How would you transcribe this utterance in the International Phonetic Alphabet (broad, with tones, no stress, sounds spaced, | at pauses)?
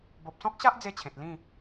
b o˨ p̚ s ɔ̃˦ k̚ ɕ a˦ ʔ d͡z e˥˧ t͡ɕʰ ẽ˨ t̚ l ĩ˥˧